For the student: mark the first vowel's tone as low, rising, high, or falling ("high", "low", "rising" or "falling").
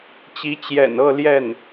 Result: rising